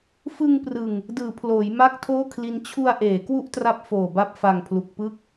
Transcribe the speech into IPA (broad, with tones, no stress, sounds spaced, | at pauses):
f ɯ˧ ŋ p r ɯ˨˩ ŋ | d ɯː˩˦ pʰ l oː˩˦ j m a˥˩ k̚ tʰ oː˥˩ kʰ l i˦˥ n t͡ɕʰ u˧ a̯ ʔ eː˩˦ k w u˥˩ ʔ t r a˦˥ p̚ f oː˨˩ b a˦˥ p̚ f a˨˩ ŋ pʰ l u˨˩ k̚ p ɯ˥˩ k̚